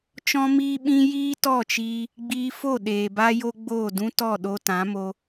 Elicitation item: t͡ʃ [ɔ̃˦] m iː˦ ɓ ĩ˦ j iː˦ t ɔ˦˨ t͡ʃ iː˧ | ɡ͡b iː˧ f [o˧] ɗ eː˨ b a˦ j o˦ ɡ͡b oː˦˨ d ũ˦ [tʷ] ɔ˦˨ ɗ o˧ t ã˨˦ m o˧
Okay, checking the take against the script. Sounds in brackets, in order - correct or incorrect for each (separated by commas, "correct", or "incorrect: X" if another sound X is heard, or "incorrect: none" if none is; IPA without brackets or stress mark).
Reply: correct, incorrect: o˦˨, incorrect: t